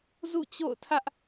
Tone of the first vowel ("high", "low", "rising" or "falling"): falling